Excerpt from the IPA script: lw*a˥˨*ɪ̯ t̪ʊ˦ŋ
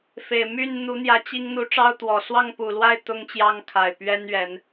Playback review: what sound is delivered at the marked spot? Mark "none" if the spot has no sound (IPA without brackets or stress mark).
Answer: a˥˨